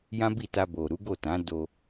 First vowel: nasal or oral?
nasal